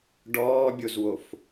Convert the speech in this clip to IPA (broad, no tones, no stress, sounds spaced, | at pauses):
ɖ ɔː bʲ o z w o f